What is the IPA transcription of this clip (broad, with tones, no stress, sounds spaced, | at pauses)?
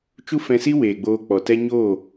t͡ʃ u˦ f ɛ̃˧ s i˦ w eː˨ ɡ͡b oː˧ k͡p ɔ˨ t ɛ˦ ɲ o˦˨